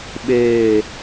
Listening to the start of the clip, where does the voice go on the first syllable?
falling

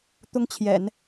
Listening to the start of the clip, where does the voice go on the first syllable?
high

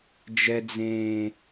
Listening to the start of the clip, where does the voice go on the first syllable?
low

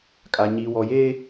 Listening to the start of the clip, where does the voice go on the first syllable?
low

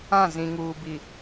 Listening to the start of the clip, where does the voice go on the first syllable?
falling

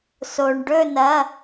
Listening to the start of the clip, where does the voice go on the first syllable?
low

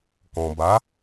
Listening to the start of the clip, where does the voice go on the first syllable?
low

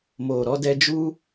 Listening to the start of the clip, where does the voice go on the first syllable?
low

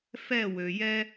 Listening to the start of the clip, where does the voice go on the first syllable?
falling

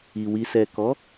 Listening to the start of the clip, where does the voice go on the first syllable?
low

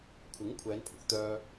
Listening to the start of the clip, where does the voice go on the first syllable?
rising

